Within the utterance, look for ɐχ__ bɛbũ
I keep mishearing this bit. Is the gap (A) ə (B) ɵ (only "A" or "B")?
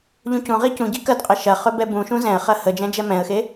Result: B